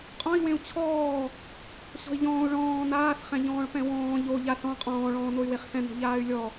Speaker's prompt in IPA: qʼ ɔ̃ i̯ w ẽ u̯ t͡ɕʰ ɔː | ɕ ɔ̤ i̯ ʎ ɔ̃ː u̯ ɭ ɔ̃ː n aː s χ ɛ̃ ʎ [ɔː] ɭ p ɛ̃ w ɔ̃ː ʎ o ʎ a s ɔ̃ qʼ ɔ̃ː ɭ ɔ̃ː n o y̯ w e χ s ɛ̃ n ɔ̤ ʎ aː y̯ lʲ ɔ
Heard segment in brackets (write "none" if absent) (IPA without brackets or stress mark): ɔ̃ː